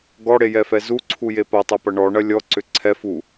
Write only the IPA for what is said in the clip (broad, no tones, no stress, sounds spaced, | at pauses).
ɡ ɔ ɽ e j ɛ f ɛ z u ǀʰ u j e p ɐ tˤ ɛ p ɐ ɳ ɔ ɳ ɐ lʲ ɔ ǀ ʏ ǀʰ ɛ f u